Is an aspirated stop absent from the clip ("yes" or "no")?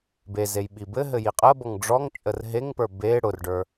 yes